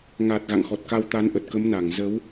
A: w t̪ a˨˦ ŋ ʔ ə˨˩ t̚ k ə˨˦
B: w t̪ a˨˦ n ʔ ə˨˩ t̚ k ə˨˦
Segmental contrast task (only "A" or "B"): B